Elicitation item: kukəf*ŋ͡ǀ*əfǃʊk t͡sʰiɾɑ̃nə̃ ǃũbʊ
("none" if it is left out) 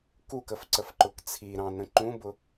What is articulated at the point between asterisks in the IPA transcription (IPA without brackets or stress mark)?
ǀ